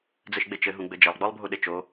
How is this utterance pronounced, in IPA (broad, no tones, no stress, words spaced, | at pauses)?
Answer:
d͡zɘʃɡ͡bet͡ʃɘ ɦũɡ͡bɘd͡ʒɐlˠ ɡ͡bɔlˠbʱuɗet͡ʃo